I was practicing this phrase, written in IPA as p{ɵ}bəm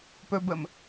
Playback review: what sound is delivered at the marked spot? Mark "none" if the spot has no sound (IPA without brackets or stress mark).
ɵ